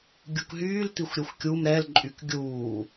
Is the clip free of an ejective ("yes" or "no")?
no